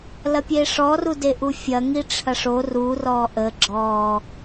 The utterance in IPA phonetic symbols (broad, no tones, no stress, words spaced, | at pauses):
lɐpʲeʂɔ rudeʔufʲɐ ŋiʈ͡ʂʰɐʂo ru rɔʔə ɡ͡ǁɔ